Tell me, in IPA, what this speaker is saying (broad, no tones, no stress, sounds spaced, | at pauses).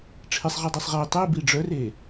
ʈ͡ʂʰ e sˤ ʁ i dˤ i sˤ ʁ i tˤ i b i ɖ͡ʐ œ r e